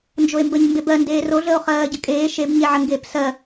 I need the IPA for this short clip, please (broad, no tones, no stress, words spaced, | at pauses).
nd͡ʒoe̯mbəɲ mbebɜ ndeːroɮəːo̯ χɜːɟəkʼeː ʃebɲeʕə ŋɡeːpsɜ